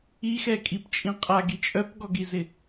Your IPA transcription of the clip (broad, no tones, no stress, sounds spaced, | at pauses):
i x ɛ kʼ i p t͡ʃʼ ĩ qʼ a ɡ i t͡ʃʼ œ p ɡ ɔ ɡ i z ɪ